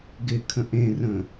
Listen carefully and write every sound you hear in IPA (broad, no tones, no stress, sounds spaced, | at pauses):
ɡ ɪ kʰ ə̃ ʔ ẽ r ə̃